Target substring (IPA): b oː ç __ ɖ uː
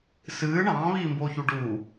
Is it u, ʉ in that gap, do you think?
u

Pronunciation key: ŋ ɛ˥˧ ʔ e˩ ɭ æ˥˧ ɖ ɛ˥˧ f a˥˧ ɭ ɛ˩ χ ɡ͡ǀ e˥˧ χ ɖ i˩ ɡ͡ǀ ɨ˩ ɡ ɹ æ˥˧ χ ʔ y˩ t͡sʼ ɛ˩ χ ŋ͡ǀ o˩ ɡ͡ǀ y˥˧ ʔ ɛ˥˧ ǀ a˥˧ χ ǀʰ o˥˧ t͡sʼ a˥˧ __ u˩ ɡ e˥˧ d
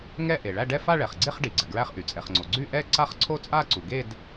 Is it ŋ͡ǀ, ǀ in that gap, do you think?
ǀ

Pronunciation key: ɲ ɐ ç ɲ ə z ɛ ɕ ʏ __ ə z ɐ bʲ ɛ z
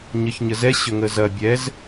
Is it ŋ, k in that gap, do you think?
ŋ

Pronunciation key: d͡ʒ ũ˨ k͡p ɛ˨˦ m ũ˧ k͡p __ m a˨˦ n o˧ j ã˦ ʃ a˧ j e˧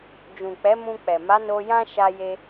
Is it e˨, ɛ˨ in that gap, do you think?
ɛ˨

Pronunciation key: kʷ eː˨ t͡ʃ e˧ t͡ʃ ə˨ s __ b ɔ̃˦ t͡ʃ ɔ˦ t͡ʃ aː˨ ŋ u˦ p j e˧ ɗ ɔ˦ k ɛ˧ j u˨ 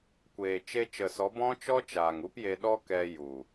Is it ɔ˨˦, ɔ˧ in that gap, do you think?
ɔ˨˦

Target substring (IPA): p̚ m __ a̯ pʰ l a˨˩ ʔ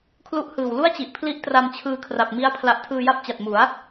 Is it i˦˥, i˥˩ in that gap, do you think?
i˦˥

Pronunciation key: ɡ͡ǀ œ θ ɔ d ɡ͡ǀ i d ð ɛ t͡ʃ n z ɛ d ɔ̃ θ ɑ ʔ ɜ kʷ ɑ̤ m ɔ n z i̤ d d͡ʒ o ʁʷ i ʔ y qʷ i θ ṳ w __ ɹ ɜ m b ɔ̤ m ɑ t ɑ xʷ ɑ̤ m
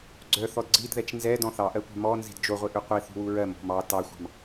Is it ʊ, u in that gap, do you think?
u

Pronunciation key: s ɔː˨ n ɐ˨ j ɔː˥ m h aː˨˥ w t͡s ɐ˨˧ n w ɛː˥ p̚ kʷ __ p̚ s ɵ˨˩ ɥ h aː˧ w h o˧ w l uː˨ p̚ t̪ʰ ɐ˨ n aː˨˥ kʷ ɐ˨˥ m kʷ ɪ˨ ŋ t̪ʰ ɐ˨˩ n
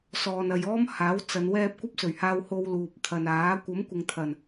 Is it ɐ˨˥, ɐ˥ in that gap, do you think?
ɐ˥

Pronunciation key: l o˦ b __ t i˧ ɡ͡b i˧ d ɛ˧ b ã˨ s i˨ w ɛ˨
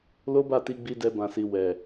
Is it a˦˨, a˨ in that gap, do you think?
a˦˨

